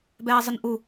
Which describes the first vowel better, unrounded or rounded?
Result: unrounded